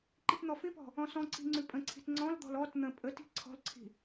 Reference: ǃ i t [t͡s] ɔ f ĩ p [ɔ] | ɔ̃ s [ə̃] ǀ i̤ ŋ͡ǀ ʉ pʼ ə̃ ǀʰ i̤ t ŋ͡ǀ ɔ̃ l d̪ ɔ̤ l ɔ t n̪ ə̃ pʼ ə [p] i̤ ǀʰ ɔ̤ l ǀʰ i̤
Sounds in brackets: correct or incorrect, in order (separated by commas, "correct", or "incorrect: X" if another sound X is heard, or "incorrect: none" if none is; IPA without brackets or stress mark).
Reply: incorrect: n̪, incorrect: ɔ̤, incorrect: ɔ̃, incorrect: t